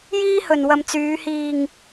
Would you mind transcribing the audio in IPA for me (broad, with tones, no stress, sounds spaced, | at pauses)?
j iː˥ h ɵ˨ n w ɐ˨ m t͡s yː˨˧ h iː˨ ŋ